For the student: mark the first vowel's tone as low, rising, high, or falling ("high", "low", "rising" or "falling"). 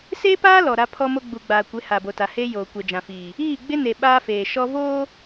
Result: high